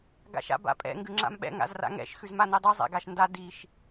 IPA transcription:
ɡ a̰ ʃ a̰ b a̰ pʼ ɛ̰ ŋ ɡ ʉ ŋ͡ǁ a̰ m ɓ ɛ̰ ŋ a̰ z r a̰ ŋ ɛ̰ ʃ x ʉ z m a n i dˤ ʉ zˤ ɛ̰ ɡ a ʃ n d a d i ʃ

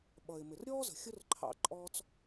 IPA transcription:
ɓ ʌ˩ ɪ̯ m ɪ˩ r ɾʲ ɔː˥ z ə̤˩ xʲ ʊ˥ r ǃʰ ɑ̰˧ ǃʼ ɔː˧ t͡s

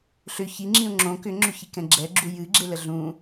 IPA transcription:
ɬ ʏ ç i ŋ͡ǁ ĩ ʊ̯ ŋ͡ǁ õ k ʏ ŋ͡ǁ ʏ ç i k ɛ̃ ɡ͡ǁ ɛ ɡ͡ǁ u j ɨ ɡ͡ǁ e l ə ɮ ũ

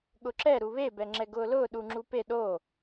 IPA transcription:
ɠ ʊ ǁ ɛ ɾ u β e b ɛ ŋ͡ǁ ɛ ɡ ʊː l ʊː ɗ u ŋ͡ǁ u p e ɗ o

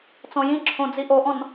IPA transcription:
t͡s ɔ̃ j ĩ ǁʰ õ d͡z i ʔ o ʔ ɔ̃ n

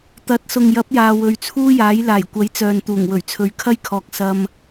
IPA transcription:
t̪ ɐ˨˥ t̚ s ʊ˨ ŋ j ɐ˨˥ p̚ j aː˨ w ɵ˨˧ ɥ t͡sʰ uː˥ j aː˨˥ j l aː˨˩ j kʷ ɐ˨˥ j t͡s œː˨ n t̪ uː˨˩ ŋ w ɵ˨˩ ɥ t͡sʰ ɵ˨˧ ɥ kʰ ɐ˥ j kʰ ɔː˨ k̚ s ɐ˧ m

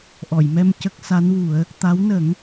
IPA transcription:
ʔ ɔ˨˩˨ j m ɛ˧ m c ə˦˥ k̚ s a˧˥ n w u˨˩˦ ə̯ | t̪ a˧˥ w n ə˨˩˦ ŋ

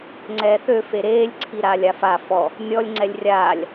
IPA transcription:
ŋ͡ǀ ɛː θ ø f e ɾ eː lʲ ǀʰ i ɾ aː lʲ a f a f ɔ | nʲ ɔ lʲ ŋ͡ǀ ɛ lʲ rʲ aː lʲ

